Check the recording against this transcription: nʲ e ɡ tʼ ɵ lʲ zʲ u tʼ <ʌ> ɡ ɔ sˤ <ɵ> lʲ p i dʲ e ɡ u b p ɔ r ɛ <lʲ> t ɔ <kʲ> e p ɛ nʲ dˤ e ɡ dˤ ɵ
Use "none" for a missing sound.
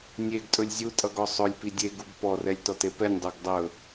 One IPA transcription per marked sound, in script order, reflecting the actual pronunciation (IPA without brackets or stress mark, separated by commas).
ʌ, ɵ, lʲ, t